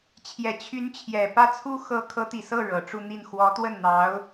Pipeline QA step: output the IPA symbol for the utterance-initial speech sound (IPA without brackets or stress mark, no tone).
t͡ɕʰ